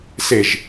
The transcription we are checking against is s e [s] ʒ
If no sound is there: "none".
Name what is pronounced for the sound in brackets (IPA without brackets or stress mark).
none